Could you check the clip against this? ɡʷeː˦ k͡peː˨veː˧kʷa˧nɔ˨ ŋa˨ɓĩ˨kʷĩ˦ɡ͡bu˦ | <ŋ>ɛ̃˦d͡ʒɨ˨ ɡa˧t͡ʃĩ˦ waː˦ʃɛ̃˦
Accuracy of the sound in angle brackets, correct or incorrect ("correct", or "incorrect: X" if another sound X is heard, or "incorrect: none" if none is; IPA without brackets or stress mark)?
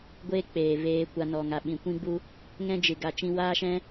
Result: correct